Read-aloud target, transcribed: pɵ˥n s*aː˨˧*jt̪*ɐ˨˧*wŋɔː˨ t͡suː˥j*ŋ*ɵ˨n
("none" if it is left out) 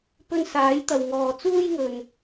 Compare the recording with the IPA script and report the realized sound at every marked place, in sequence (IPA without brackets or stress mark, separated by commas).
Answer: aː˨˥, ɐ˨, ŋ